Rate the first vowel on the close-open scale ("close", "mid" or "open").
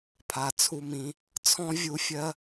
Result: open